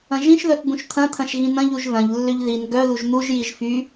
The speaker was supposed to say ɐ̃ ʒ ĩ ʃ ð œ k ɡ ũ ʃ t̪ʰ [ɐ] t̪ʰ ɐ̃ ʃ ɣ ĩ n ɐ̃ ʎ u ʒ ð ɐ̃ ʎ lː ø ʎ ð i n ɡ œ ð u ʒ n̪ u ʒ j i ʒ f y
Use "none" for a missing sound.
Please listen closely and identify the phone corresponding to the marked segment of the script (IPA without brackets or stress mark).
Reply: ɐ̃